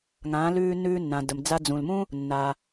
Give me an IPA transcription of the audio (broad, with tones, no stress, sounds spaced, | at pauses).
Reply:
ŋ ã˩˧ l ʉː˧ nː ʉː˧ nː ã˩ d ə˩ m d͡z a˧ d͡z ũ˩ l m ũ˥ | nː a˩